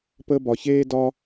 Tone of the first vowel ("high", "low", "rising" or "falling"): high